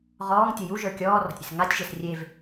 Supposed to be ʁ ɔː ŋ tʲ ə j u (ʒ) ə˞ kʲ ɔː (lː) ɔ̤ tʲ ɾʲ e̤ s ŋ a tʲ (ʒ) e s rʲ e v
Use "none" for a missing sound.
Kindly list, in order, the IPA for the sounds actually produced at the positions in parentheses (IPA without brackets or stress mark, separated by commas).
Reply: ʒ, r, ʒ